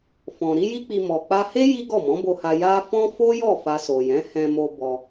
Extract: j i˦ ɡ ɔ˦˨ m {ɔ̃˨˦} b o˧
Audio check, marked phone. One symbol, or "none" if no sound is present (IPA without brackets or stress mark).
ɔ̃˨˦